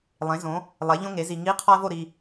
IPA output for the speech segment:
lˠẽ˩˥ zõ˩˥ | lˠe˩˥ ʎõ˥ŋe˩˥zi˨ ŋi˧˥˧qʰɒ˥ɐ̯vo˥˨ ɾi˨

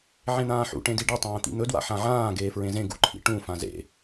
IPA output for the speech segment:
ʕẽn̪ãːħṵ ʈẽdiɖi tˤɐ̃ːt̪ḭn̪ɵ dwa̰ħãʕãː ɡeːfɹẽzẽ ɡṵǃʰḭʈũ fãzḛ

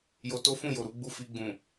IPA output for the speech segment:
jo˧to˦fũ˦˨jo˨ ɾu˨˦ɡ͡bu˦˨ fi˧ɡ͡bũ˨

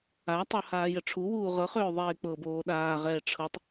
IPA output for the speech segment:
atˤo haːjəʈ͡ʂʰuwuː ʁɤχøː ðˤeːk͡pɤboː ɗaːʁɛː ʈ͡ʂʰɤtˤ

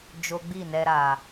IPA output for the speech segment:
d͡ʒo˦ ɡ͡bi˦˨nɛ˧ɾa˨

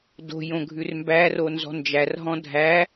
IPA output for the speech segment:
do̤ jõɡʱʉrmbæro nzɔ̤nd͡ʒærɦɔ̃ dʱæ

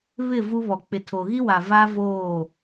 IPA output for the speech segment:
βɪ˦˨ vu˦βɔ˨ k͡pɪ˨tʰo˨ɣi˦wa˨ va˦voː˦˨

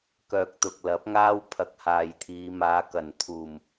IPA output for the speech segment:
kœː˨k̚t̪ʊ˨k̚ lɐ˨˥p̚ŋaː˥w pʰɐ˧k̚haː˨jt̪ʰiː˨˧ maː˨˧kɐ˨˩nt̪ʰuː˨˩m

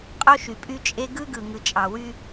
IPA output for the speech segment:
qʼo˦ʃy˨pʼy˦t͡ʃʼe˦ ɡɯ˦ɡɯ˨ ŋɯ˨t͡ʃʼɑ˨wy˦

